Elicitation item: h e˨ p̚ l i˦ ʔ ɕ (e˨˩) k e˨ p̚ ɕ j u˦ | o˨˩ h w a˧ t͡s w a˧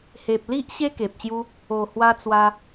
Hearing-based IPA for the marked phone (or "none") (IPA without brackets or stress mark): e˦